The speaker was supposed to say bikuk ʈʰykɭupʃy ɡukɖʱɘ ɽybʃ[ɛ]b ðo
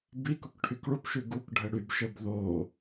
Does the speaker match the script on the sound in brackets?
no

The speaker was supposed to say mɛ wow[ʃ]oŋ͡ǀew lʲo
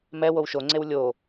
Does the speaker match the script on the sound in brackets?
yes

